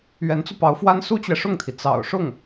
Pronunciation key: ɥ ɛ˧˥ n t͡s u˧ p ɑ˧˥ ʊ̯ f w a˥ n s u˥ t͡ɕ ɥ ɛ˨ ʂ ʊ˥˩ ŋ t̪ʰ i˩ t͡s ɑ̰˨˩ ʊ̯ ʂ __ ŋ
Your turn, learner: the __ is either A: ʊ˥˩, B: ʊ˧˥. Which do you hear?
A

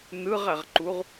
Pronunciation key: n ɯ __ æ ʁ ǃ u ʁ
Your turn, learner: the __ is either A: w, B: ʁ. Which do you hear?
B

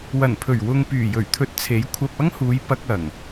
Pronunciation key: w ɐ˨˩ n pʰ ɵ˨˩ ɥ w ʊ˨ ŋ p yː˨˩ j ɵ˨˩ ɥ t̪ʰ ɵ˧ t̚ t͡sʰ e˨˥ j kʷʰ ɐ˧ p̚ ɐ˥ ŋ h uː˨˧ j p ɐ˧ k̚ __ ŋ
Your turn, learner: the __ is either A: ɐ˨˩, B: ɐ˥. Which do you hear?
A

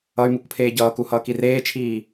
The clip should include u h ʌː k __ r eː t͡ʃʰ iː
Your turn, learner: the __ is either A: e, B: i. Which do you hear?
B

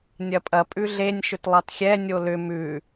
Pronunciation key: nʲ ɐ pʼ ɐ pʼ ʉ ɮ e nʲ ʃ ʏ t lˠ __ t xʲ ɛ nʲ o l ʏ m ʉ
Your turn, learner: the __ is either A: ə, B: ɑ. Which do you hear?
B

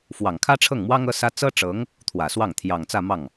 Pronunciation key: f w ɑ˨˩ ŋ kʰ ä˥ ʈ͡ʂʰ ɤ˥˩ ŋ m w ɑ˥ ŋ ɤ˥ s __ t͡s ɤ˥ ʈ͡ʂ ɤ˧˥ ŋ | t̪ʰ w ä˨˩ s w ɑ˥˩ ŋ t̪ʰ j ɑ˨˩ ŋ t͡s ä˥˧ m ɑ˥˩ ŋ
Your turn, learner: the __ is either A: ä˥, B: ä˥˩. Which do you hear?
A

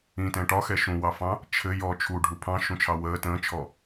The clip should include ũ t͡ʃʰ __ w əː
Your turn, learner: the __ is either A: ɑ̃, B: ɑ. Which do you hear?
B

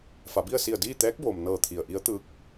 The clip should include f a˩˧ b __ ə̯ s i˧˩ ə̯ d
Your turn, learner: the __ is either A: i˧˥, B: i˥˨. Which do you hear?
B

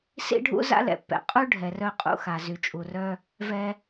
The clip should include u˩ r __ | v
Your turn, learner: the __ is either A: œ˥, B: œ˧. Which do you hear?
B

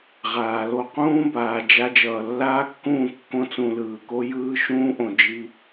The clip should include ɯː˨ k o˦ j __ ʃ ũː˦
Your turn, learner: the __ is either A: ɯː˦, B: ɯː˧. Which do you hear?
A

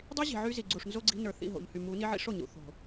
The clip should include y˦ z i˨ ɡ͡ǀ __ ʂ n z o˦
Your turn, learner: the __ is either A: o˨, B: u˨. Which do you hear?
B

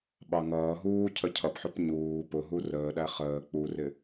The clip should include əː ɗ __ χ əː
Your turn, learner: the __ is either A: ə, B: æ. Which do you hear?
B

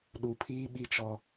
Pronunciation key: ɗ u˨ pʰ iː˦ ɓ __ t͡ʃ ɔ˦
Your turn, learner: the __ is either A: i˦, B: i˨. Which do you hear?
A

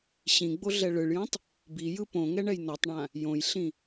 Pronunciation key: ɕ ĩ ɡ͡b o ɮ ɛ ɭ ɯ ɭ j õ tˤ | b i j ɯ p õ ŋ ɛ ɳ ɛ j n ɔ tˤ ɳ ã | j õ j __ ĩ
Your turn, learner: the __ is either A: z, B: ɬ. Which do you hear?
B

